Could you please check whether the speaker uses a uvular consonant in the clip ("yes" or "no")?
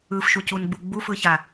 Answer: no